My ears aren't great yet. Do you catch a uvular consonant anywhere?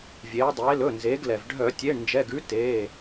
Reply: no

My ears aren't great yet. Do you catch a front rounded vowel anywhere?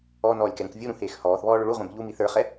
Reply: yes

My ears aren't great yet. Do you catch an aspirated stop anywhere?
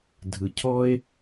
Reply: yes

